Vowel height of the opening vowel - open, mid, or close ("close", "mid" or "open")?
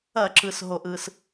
open